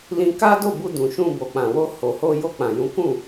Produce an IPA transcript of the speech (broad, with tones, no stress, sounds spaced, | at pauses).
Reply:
l ĩ˧ k a˦ d o˦˨ b u˧ d ũ˨ ʃ ũ˧ b o˨ k͡p ã˨ w o˧ h o˨ h o˧ j o˧ k͡p ã˨ j ũ˨˦ k ũ˦˨